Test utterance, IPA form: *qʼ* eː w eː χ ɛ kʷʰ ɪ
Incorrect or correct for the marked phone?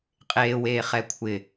correct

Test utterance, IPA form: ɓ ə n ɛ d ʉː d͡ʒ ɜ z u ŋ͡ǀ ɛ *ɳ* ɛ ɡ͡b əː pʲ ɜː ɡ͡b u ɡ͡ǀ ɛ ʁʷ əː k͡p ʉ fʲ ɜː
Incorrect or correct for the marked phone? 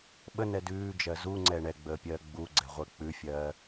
correct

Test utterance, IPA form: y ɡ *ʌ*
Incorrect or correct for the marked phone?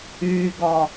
incorrect: ɒ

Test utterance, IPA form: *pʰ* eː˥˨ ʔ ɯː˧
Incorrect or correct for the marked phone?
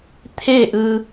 incorrect: t̪ʰ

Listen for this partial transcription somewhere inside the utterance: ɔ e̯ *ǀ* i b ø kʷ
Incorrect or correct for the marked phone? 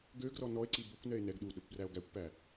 correct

